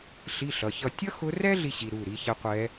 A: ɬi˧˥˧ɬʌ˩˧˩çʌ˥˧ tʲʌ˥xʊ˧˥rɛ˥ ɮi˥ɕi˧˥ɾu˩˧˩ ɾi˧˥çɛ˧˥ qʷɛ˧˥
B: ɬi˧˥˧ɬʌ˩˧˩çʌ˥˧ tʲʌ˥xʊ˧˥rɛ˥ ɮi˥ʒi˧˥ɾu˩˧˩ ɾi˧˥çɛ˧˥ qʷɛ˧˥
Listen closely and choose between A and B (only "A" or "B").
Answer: A